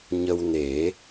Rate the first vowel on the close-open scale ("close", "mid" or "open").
mid